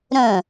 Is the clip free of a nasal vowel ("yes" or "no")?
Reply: no